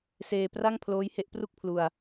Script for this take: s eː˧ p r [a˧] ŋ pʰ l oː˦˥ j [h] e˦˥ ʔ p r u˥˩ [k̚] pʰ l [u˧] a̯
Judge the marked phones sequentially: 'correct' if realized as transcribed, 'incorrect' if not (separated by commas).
incorrect, correct, correct, correct